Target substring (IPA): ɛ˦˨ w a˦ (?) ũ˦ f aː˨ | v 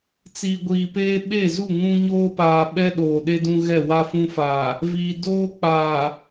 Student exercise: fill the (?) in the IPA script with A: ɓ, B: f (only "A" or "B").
B